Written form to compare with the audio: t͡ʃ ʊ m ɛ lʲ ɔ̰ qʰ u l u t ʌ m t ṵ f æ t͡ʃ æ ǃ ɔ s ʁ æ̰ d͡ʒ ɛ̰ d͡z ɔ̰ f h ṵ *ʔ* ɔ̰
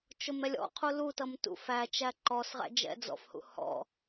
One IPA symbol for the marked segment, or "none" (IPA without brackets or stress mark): h